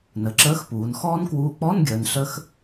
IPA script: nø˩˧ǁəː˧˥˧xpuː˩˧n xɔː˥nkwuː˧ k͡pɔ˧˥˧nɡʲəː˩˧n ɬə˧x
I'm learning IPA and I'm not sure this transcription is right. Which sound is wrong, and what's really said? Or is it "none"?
ø˩˧ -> ə˩˧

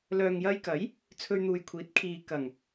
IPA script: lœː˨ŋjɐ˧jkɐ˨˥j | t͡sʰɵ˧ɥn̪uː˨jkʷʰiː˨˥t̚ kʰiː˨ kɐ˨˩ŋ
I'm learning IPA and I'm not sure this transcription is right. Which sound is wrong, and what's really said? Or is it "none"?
none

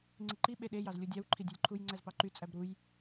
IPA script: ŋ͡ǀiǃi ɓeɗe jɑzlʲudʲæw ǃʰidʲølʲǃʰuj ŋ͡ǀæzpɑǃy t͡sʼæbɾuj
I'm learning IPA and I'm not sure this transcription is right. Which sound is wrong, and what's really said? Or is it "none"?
none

